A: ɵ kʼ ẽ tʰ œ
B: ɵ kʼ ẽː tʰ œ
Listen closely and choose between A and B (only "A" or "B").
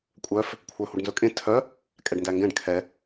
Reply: A